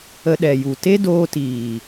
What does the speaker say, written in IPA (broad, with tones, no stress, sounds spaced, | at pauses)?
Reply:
ə˧ ɗ ɛ˨ j u˨ t e˦ d oː˧ t iː˨